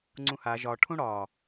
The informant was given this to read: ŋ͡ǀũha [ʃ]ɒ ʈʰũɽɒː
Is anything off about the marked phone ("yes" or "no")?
yes